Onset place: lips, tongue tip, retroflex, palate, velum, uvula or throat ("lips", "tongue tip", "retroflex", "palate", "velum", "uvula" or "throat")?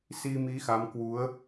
tongue tip